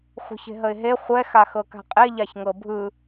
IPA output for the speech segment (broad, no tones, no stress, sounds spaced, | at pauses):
χʷ ə̤ ç e̤ ɦ ə ɪ̯ ɦ e χʷ ɛ x a x ɤ k a̤ qʼ e ʎ a ç ŋ ɤ bʱ ɯ